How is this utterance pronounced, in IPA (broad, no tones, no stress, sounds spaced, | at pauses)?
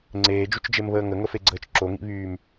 ŋ͡ǀ eː d͡ʒ u t͡ʃ d͡ʒ e m β əː ŋ ə ŋ ə f e ɡ͡ǀ əː t͡ʃ ǁ o ŋ ḭ β yː m